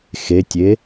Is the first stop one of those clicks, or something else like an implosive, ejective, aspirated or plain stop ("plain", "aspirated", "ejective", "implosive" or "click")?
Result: plain